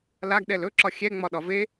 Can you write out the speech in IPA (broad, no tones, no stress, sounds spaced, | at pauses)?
l a ɡ ɗ ɛ l ɵ ǁ ɒ xʲ ɛ ŋ͡m ɒ ɗ ɒ v e